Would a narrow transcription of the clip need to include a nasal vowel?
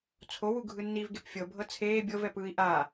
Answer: no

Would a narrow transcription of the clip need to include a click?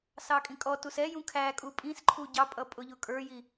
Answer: yes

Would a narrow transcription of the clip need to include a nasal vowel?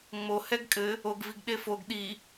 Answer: no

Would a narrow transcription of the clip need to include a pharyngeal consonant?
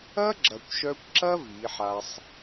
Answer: yes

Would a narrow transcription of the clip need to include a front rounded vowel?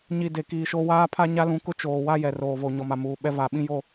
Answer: no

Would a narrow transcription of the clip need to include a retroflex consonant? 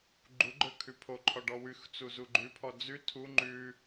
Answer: yes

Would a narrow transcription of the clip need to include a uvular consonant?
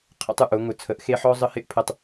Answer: yes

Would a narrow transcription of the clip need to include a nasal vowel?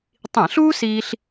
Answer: yes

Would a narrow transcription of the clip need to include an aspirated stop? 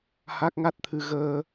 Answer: yes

